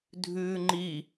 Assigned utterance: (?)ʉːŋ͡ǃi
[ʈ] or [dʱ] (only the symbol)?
dʱ